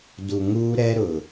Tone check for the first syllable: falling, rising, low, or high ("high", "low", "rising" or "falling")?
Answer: low